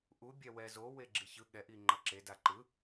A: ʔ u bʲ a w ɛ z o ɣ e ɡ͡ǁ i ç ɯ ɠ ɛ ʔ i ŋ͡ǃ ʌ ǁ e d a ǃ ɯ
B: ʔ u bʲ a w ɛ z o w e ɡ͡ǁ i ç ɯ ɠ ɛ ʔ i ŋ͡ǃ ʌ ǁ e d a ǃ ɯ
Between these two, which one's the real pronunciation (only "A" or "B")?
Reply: B